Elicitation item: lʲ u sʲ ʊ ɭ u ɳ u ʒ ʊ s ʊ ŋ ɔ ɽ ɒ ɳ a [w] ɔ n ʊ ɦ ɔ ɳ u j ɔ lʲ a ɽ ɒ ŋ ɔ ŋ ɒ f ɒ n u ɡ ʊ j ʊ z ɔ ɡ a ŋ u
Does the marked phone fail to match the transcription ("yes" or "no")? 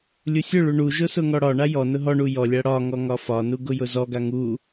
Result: yes